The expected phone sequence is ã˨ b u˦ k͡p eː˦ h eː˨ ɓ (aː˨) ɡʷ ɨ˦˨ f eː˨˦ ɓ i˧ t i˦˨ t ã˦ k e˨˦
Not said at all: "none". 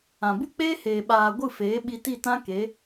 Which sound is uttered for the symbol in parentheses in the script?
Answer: aː˨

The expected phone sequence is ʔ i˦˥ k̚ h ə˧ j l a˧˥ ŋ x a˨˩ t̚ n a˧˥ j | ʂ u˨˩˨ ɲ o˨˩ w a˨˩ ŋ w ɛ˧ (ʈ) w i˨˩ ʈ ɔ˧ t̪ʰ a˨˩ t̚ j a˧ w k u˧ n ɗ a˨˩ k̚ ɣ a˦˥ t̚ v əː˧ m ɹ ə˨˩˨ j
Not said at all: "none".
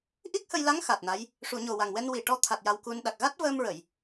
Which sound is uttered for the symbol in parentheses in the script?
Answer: n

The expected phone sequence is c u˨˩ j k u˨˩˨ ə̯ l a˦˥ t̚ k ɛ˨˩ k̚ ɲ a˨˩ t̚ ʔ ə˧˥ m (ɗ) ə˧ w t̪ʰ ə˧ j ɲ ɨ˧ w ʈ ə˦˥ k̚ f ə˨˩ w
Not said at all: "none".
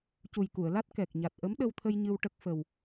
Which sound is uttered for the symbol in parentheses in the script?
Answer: ɗ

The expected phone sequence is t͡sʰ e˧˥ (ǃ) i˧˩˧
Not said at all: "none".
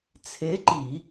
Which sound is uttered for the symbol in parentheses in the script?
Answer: ǃ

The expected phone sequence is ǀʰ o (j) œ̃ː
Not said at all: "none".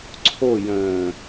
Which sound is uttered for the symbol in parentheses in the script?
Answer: j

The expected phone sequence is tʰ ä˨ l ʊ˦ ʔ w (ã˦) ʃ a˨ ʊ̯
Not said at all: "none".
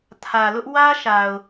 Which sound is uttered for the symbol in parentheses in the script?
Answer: ä˦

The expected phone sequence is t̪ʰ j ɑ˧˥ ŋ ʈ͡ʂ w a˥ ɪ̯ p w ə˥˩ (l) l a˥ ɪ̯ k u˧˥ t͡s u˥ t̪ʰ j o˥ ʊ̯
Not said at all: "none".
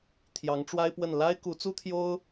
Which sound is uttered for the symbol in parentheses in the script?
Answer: n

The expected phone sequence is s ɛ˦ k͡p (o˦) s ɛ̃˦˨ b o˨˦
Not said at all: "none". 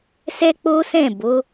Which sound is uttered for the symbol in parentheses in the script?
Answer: o˦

